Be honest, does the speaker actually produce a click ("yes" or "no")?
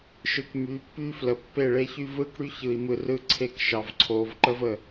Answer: yes